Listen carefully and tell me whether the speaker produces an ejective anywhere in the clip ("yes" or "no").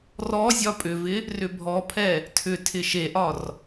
yes